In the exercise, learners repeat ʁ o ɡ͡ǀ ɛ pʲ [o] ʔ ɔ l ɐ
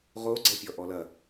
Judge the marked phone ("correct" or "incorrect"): incorrect